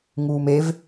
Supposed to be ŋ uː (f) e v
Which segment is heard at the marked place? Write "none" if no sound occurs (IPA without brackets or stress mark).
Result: m